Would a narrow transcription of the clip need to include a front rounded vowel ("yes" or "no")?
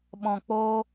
no